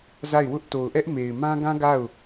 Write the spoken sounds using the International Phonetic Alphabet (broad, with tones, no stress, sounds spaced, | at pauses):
z a˦˨ ɪ̯ w ʊ˦ ʔ t o˨ ʊ̯ ʔ ɛ˦ ʔ m e˨ ɪ̯ m ã˦ ɡ ã˦ ɡ a˦˨ ʊ̯